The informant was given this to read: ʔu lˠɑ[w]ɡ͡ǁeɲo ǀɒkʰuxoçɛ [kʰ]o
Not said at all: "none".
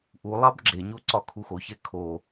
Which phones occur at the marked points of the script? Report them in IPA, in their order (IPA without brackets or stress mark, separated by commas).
b, kʰ